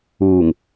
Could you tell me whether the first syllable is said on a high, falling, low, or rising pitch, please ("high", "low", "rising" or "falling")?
low